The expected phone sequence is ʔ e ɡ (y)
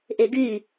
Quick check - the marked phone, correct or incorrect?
correct